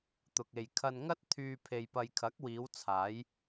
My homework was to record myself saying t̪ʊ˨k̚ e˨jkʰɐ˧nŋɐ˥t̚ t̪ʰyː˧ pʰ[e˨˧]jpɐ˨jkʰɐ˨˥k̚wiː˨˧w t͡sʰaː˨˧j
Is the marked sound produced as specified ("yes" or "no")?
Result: no